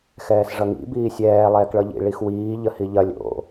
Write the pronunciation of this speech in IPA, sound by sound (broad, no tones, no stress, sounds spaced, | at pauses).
x ɛː s ʐ ʌ ŋ ḭ b iː sʲ ɛː lˠ ɛː k ɭ ʌ ʎ ḭ ɭ i x w iː ʎ ə h i ʎ ɐ lʲ o̰